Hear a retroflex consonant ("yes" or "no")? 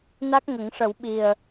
yes